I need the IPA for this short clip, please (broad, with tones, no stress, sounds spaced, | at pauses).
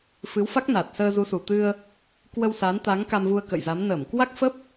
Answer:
f ɨ˨˦ w f a˦˥ k̚ n a˨˩ t̚ s əː˧ z u˨˦ s u˨˩ t̪ ɨ˧ ə̯ | k w ə˧ w s a˨˦ n t̪ a˨˦ ŋ k a˧ m v u˧ ə̯ k ə̰˧˨ j z a˨˦ m n əː˧˩ m k w a˦˥ k̚ f ə˦˥ p̚